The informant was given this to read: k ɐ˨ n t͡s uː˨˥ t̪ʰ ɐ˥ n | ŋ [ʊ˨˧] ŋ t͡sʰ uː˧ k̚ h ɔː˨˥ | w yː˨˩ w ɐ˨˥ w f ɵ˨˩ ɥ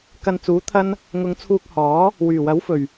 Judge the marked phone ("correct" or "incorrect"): correct